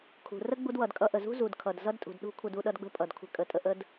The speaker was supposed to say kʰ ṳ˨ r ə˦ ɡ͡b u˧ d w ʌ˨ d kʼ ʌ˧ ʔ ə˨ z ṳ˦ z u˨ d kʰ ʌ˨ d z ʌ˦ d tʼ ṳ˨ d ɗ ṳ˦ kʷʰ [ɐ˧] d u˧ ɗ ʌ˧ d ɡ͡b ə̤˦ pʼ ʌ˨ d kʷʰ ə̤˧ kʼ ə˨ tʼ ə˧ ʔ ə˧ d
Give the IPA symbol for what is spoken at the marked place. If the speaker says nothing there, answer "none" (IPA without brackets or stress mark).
ə˧